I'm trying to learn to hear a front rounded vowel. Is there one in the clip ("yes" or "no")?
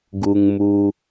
no